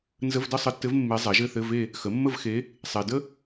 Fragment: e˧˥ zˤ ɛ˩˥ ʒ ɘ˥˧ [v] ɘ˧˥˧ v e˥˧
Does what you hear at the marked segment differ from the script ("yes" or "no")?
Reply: yes